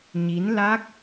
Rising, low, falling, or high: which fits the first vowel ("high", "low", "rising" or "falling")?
rising